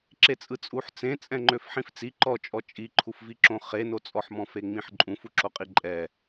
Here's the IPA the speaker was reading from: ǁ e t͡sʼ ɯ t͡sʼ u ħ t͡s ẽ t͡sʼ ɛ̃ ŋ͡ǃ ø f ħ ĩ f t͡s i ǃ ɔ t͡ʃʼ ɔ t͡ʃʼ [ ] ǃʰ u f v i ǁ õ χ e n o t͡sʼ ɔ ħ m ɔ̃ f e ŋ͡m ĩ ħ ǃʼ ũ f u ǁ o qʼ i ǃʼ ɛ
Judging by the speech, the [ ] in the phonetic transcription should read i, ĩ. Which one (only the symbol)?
i